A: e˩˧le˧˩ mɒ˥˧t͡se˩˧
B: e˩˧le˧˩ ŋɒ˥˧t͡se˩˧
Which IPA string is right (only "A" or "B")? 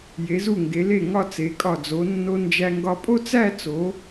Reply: B